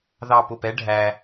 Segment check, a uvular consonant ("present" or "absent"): absent